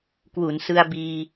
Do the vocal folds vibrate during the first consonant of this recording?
no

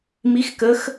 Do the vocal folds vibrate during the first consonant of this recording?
yes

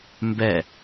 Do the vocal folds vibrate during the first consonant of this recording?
yes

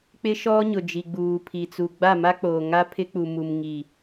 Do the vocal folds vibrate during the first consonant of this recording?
no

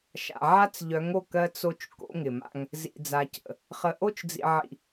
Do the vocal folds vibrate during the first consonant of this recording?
no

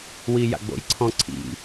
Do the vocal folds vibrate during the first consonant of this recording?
yes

